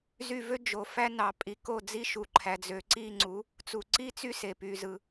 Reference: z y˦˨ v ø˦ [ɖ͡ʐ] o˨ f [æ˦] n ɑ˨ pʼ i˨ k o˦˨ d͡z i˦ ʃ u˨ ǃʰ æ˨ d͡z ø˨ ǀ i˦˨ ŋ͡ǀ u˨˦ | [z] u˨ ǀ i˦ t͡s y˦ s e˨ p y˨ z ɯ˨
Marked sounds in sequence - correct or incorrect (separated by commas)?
incorrect, correct, incorrect